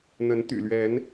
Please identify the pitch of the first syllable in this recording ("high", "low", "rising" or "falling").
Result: rising